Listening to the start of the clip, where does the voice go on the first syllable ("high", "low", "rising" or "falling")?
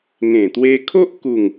low